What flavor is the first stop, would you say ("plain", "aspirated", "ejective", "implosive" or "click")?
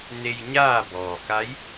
plain